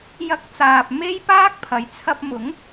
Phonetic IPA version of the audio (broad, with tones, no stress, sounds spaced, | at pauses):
j ɐ˧ k̚ t͡s aː˨ p̚ m e˥ j p aː˥ k̚ pʰ ɐ˨ j t͡sʰ ɐ˧ p̚ m ʊ˨˥ ŋ